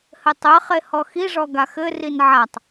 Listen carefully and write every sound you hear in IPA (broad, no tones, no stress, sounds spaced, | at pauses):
h ɘ tˤ ɘ χ e h ɔ x i ʐ ɔ ɡ a x ɘ r i n ʕ a tˤ